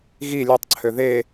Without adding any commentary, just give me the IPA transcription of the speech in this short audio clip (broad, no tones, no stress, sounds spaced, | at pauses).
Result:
ɣ i lʲ ø tˤ ǀʰ ø ð e